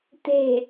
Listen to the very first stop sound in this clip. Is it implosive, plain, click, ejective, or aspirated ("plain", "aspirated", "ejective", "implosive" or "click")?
plain